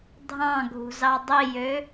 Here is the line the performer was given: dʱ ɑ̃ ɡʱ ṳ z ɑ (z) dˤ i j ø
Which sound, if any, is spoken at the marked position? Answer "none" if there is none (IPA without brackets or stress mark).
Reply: none